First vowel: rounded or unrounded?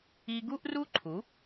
unrounded